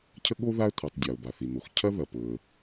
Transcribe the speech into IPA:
cʰ ə˥ ɠ o˥ ð a˥ ə̯ t̪ʰ a˩ tˤ dʲ ɒ˩ ə̯ b a˩ θ i˩ n̪ o˩ x cʰ ɐ˥ ð ɐ˩ p ɵ˩ ə̯

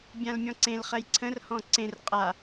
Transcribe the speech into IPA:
bʲ ã l mʲ ɔ̃ ǀ ẽ l χ ɛ j ǀʰ ə̃ r h ɔ̃ ǀ ẽ r qʼ a

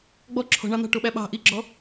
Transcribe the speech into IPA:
ɡ͡b ɔ ǁʰ ɔ̤ ɳ ɑ n̪ ɑ̤ ʈ o ɓ æ ɓ ɑ̤ ʔ i ɡ͡ǁ ɔ

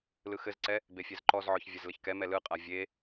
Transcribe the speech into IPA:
l ɯ x ɘ z ǀ ɛ | b e fʲ ɛ z ǃ ɔ z ʕ ɔ ç vʲ ɛ z l ɘ ç k ɛ m ɛ l ɯ qʼ a vʲ e

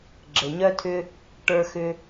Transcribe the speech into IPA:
ɡ͡ǁ ə˩ ɲ œ˧ tʰ ʏ˧ | ʈ ə˞˧ x ʏ˧

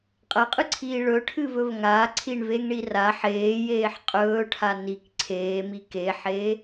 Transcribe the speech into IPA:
qʼ ɐ qʼ ɨ ǀʰ iː ɭ ɵ ʈʰ ɨ v ɵ v ŋ aː ǀʰ iː ɳ v e ŋ ɳ i r a ħ eː j eː ħ qʼ ɵː ʈʰ a n i k ǀʰ eː m i k eː ħ eː

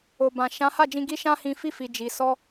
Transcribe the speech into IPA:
o˨ b ã˨ ʃ ã˨˦ h a˦˨ d͡ʒ ĩ˧ ɡ i˦ ʃ ã˦ h ĩ˧ f i˦ f i˧ d͡ʒ i˧ s ɔ˦

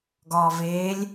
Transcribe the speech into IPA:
ɡ ɒː v eː lʲ

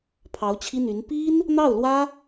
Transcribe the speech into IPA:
pʰ ɑ˧˥ ʊ̯ t͡ɕʰ i˥ n̪ y˧˥ n p i˥ n | n̪ ɑ˥˩ ʊ̯ l w ä˥

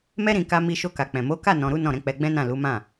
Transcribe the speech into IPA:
m ɛ˦ ɾ ĩ˧ k a˧ m i˧ ʃ o˧ k a˨ k͡p ɛ̃˨ m o˨˦ k a˦˨ n ɔ̃˧ ɾ u˦ n ɔ̃˦˨ ɾ ɛ̃˨˦ k͡p ɛ˧ ɡ͡b ɛ̃˦ n ã˦˨ l u˨˦ m ã˦˨

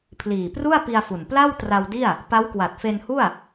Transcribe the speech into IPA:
pʰ l iː˨˩ p r u˥˩ a̯ p i˧ a̯ f u˨˩ n p l a˥˩ w t r a˧ w d i˥˩ a̯ | p a˦˥ w k w a˨˩ t̚ f e˧ n h u˥˩ a̯

